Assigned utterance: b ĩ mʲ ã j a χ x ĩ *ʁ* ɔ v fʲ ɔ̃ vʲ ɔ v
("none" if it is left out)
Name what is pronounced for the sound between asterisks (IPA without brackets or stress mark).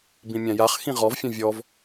ʁ